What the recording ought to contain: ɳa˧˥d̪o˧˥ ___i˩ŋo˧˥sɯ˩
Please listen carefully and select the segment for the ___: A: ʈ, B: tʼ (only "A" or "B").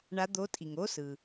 B